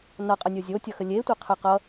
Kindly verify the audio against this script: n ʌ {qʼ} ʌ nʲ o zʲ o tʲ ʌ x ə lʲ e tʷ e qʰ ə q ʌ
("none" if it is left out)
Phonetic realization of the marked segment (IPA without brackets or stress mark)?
qʼ